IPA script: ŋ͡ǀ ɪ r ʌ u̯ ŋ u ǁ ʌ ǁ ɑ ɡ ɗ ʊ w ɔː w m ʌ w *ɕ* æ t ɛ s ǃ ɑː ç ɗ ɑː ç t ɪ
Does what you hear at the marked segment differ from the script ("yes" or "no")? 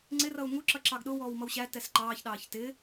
no